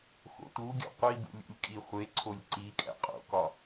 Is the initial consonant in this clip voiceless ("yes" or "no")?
yes